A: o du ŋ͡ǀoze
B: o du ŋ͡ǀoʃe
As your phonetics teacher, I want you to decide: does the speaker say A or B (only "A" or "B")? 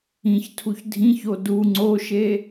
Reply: B